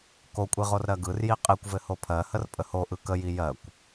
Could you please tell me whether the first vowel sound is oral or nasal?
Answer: oral